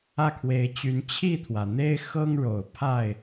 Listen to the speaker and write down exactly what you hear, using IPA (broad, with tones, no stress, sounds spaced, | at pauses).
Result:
ä˥˨ kʰ w e˨˦ ɪ̯ t͡ɕ y˨˦ n t͡ɕʰ i˥˨ t̪ʰ w ä˩ n̪ e˦ ɪ̯ x ɤ˦ ŋ ɻ o˨˩ ʊ̯ pʰ a˥˨ ɪ̯